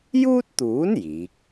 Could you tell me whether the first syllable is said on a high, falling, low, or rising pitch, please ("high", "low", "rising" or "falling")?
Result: high